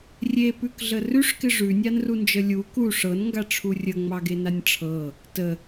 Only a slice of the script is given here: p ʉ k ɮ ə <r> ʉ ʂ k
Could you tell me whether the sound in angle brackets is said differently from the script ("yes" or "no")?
no